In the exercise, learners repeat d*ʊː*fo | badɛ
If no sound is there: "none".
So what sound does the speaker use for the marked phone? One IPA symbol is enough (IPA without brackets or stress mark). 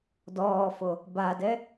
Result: ɔː